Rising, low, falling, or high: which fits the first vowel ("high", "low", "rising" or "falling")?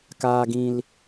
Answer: low